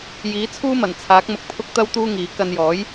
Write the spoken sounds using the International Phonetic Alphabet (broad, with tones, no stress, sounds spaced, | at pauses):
j iː˨˥ t͡sʰ uː˥ m ɐ˨˩ n t͡sʰ aː˨˥ k̚ m ʊ˧ k̚ pʰ ʊ˥ k̚ t̪ ɐ˥ w t̪ uː˥ ŋ iː˨˥ k ɐ˧ n j ɔː˨˥ j